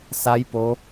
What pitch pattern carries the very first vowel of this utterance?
rising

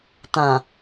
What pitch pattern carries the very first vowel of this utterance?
low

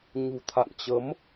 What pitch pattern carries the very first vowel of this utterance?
low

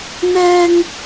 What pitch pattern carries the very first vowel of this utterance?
high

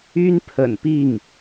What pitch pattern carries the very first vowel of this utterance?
high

